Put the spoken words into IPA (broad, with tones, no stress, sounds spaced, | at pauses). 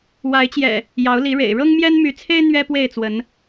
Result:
w a˨˦ ɪ̯ t͡ɕ j ɛ̰˨˩ | j ɑ˨˦ ʊ̯ l i˨˦ ɻ ḛ˨˩ ɪ̯ ɻ ɤ˦ ŋ m j ɛ˦ n m y˨˦ t͡sʰ e˦ ɪ̯ n̪ ɥ ɛ˦ p w e˥˨ ɪ̯ t͡s w ə˨˦ n